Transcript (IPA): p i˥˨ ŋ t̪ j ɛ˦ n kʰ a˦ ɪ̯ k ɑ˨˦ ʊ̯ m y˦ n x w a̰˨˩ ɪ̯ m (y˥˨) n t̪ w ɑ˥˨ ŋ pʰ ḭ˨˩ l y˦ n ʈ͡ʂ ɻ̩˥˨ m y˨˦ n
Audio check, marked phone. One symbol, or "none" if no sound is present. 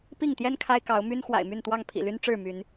y˥˨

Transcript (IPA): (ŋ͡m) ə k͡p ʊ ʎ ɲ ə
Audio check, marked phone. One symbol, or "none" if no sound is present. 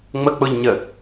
ŋ͡m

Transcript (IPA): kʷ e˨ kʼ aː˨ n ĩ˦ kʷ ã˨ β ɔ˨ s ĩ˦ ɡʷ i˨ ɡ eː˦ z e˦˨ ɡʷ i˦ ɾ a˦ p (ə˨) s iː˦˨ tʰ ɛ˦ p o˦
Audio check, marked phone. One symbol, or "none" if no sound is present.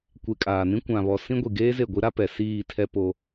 ɛ˨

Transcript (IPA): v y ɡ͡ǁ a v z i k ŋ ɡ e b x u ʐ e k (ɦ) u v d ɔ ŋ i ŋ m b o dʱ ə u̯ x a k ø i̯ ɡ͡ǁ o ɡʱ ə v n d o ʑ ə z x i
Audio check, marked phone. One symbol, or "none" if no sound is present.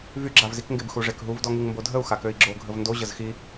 ɦ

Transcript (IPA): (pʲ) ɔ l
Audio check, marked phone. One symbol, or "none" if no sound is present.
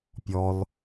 pʲ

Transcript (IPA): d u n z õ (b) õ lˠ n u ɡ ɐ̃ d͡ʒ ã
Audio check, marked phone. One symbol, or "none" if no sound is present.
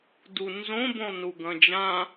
b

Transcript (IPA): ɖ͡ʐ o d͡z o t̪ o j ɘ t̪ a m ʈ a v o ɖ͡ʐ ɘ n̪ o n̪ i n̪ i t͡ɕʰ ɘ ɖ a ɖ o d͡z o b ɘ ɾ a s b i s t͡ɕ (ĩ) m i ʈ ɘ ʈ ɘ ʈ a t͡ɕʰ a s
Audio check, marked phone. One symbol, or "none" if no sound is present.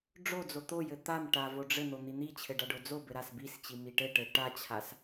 i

